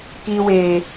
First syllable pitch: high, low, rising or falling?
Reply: high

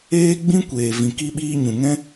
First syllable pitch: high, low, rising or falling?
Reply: high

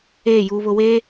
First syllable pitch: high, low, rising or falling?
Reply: falling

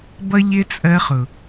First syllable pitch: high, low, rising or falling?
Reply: high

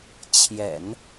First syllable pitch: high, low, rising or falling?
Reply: low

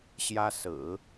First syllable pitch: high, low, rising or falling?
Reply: high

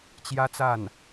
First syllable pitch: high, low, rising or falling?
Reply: high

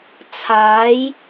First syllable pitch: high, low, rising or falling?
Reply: rising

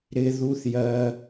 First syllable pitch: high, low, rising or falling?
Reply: low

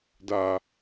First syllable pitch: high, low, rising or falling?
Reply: low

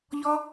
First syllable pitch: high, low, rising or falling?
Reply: high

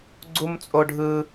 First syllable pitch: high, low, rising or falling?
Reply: high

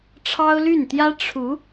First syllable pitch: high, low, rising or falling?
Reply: high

